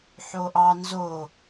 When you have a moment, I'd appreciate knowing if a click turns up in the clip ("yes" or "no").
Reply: no